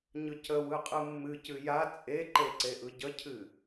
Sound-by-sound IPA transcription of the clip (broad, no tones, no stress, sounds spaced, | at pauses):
ɲ ɯ c ə w ɯ qʼ ɯ mː ɨ c ɨ j a t͡sʼ e ǃ e ǀ e ʔ ɯ ɟ ə cʰ ɨ